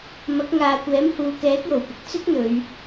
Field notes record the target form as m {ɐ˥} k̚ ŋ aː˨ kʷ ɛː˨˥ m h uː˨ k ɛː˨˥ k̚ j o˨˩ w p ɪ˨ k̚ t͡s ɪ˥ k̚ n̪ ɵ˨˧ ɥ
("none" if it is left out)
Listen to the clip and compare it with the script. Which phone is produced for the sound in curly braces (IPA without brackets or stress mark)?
ɐ˨˥